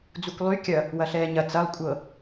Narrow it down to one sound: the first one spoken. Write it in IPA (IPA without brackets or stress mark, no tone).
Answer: d͡z